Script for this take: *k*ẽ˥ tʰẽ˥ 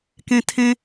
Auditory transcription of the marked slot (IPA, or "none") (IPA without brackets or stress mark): k